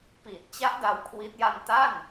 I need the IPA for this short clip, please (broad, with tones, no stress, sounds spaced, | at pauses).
p iː˨˩ t̚ t͡ɕ a˦˥ ʔ d a˦˥ w kʰ w i˦˥ t̚ j a˧ n t a˥˩ n